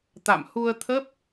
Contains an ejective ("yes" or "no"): no